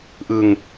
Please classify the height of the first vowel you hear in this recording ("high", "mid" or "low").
high